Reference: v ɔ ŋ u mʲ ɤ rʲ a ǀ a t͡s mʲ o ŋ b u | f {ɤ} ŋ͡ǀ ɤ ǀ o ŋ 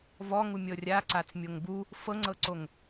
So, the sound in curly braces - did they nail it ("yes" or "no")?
yes